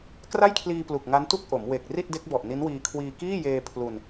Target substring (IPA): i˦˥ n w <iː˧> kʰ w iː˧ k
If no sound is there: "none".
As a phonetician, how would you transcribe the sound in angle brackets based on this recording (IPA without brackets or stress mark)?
iː˧